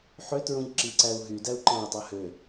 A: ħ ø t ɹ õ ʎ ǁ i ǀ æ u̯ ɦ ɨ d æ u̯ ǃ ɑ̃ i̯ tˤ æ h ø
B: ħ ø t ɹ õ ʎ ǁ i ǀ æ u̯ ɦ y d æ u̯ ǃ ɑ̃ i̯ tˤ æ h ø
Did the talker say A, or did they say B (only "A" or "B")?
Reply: B